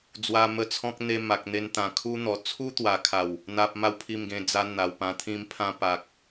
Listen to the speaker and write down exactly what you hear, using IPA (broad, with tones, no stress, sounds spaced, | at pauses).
d͡z w a˧ m ə˧ t͡sʰ ɔ̃˦ k̚ n̪ e˧ m a˨ k̚ n̪ e˧ n t̪ ã˨˩ kʰ u˦ n̪ ɔ˨˩ t͡sʰ u˦ t̪ w a˨˩ kʰ a˨˩ w | n̪ a˦ p̚ m a˦ w pʰ i˥˧ m ɡ ẽ˧ d͡z a˦ n̪ a˨˩ w p ã˧ t̪ʰ ĩ˦ m pʰ ã˦ p a˨ k̚